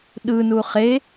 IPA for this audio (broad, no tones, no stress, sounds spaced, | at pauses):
ɗ ɯ n u χ e